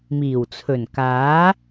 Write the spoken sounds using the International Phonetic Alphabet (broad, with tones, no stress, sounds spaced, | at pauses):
m iː˨˩ w t͡sʰ ɵ˨˩ n k aː˨˥